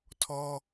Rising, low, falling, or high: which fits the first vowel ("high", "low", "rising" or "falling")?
high